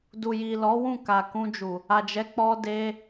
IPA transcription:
d u˨ j i˨ l ɔ˨˦ w ũ˦˨ k a˨ k ũ˧ d͡ʒ u˨ | a˨ d͡ʒ ɛ˨˦ k͡p ɔ˧ d e˧

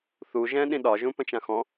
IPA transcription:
θ u ʒ ɛ̃ ɗ ĩ ɗ ɒ ʒ ũ p ə̃ t͡ʃ ã x ɔ̃

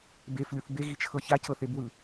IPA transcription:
b e f lʲ u θ b e ɣ i t͡ʃʰ ɤ ç a c ɤ θ e b w ɯ

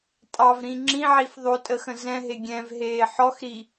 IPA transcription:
tʼ ɑ v ɾ ĩ ŋ͡ǁ ĩ ʕ i f ðˤ o tʼ ə x ə̃ z ɛ̃ ɦ e ɡʲ ɛ̃ v ɦ eː ħ ɔ x ɾ i

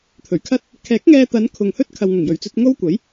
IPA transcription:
t̪ʰ ɵ˨˩ ɥ kʰ ɐ˥ t̚ | kʰ ɛː˨˥ k̚ ŋ ɛː˧ t̪ ɐ˨˧ n kʰ ʊ˨ ŋ h ɵ˥ t̚ kʰ ɐ˨ w ŋ ʊ˨˩ ŋ j ɵ˨˩ ɥ t͡s ɵ˧ t̚ ŋ o˥ w kʷ ɐ˨˥ j

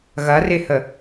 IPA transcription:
ɣ ɐ r ɪ h ə

